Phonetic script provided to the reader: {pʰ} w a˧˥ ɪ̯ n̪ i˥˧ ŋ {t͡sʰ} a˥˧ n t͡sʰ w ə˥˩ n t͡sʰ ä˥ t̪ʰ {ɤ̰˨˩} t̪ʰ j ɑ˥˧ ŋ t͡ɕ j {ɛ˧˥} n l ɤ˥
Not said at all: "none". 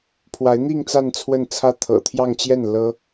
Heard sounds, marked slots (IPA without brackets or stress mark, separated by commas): pʰ, t͡s, ɤ̰˨˩, ɛ˥˩